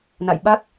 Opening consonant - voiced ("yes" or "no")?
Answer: yes